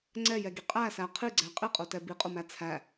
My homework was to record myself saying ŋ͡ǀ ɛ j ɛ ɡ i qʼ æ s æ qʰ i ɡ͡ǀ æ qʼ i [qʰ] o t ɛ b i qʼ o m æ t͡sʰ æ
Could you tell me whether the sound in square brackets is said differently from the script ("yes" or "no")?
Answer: yes